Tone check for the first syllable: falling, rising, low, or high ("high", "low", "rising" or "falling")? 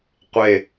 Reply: low